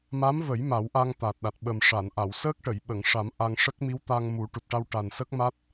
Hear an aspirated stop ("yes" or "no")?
no